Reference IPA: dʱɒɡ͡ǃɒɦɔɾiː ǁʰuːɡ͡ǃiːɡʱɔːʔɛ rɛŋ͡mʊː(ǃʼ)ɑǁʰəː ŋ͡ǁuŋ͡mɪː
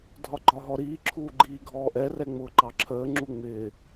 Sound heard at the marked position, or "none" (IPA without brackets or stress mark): ǃ